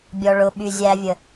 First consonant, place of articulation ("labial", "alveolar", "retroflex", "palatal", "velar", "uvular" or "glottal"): labial